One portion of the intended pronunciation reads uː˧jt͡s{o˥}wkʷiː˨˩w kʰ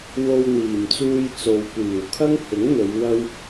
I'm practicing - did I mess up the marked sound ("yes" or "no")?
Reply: yes